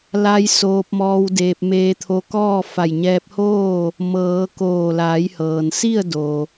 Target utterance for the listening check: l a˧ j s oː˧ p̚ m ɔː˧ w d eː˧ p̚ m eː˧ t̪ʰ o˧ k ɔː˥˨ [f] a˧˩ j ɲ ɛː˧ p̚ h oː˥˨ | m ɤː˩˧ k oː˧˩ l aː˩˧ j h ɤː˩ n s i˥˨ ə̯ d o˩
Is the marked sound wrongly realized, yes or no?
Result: no